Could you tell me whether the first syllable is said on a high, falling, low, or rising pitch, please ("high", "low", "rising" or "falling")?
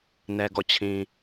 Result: low